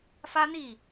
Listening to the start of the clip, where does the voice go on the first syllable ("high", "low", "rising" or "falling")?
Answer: high